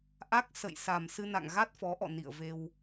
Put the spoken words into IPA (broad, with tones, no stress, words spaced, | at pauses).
ʔa˦˥k̚ sə̰˧˨jsa˨˩m sɨ˧na̰˧˨ŋ ɣa˦˥t̚fɔ˨˦ʔɔ̰˧˨ nḭ˧˨ə̯ve˧w